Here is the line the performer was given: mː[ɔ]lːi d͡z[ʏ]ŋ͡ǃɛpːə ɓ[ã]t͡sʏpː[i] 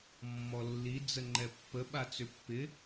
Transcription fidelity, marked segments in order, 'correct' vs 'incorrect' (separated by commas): correct, incorrect, incorrect, incorrect